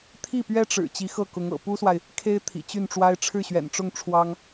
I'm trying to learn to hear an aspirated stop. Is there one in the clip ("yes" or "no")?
yes